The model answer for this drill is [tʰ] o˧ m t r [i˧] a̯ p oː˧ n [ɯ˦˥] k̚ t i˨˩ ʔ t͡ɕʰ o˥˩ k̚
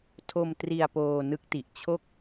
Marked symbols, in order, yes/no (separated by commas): yes, yes, yes